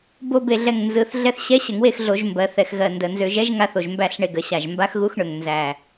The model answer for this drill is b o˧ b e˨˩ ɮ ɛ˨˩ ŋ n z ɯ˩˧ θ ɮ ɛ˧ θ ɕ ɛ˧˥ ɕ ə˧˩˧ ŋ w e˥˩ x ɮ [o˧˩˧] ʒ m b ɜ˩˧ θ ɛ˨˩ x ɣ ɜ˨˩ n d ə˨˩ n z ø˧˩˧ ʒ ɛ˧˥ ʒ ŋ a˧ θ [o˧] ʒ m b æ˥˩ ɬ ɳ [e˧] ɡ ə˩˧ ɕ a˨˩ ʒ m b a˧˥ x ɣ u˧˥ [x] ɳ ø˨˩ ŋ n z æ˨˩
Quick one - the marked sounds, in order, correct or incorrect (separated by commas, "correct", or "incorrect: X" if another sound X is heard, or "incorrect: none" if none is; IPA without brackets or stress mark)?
correct, incorrect: o˨˩, correct, correct